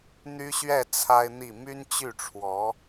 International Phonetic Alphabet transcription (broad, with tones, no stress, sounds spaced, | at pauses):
n̪ y˥ ɕ ɥ ɛ˥˩ t͡sʰ a˥ ɪ̯ n̪ i˥˩ m y˥ n t͡ɕ y˥˩ ʈ͡ʂʰ w ɔ˧˥